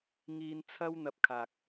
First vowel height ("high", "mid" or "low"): high